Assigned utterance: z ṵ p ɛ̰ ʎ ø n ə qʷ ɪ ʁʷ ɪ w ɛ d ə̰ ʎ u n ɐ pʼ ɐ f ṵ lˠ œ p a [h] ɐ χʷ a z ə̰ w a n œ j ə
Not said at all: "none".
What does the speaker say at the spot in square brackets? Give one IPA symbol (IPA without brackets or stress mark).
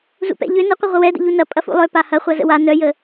h